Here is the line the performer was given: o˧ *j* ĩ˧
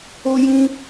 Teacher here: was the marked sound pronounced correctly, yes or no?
yes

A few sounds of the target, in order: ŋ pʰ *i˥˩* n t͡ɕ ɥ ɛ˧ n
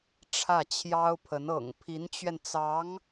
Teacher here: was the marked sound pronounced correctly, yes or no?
no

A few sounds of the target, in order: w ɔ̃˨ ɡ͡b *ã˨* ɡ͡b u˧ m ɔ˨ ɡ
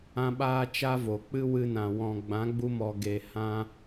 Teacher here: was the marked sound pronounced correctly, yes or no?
no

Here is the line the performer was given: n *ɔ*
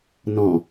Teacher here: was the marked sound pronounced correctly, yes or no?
no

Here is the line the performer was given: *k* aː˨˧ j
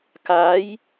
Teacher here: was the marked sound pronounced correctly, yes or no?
yes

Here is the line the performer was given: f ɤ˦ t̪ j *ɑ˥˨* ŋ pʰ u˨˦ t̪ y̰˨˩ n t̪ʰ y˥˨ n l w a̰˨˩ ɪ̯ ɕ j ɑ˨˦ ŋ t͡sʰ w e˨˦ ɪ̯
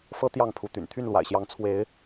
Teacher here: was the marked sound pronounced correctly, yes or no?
yes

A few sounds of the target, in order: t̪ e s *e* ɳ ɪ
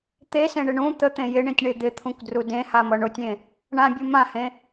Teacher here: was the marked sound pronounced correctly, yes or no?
no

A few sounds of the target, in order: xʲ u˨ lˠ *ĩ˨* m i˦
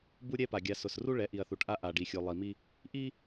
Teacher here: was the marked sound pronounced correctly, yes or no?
no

